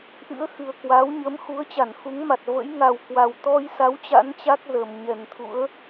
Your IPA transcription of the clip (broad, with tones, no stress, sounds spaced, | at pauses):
ʔ ɨ̰˧˥ ə̯ x ɨ˨˩ ə̯ k w a˨˦ w ɲ ə˨˦ m x u˨˦ ə̯ t͡ɕ a˧˩ n x u˨˦ ŋ m a˨˩ t̚ v ə̰˧˥ j ŋ a˨˩ w k w a˨˩ w t̪ ɔ˧ j s a˨˦ w t͡ɕ a̰˧˥ n t͡ɕ a˦˥ k̚ z ə˨˩ m ɲ ɛ˨˩ n t̪ʰ ṵ˧˥ ə̯